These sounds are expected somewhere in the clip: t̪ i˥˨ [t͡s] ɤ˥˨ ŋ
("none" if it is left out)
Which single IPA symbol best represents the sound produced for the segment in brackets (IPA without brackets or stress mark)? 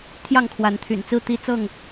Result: t͡s